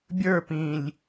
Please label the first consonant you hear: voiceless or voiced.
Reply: voiced